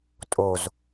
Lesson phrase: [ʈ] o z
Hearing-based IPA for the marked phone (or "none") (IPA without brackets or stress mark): tʼ